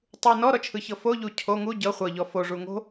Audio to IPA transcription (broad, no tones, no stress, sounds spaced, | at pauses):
tˤ u n ɔ ɾ ɔ t͡ʃʰ ɯ ç ɤ f o ʎ u cʰ o ŋ u ɟ ɤ χʷ ɤ ʎ ɔ f o ʐ u ŋ o̤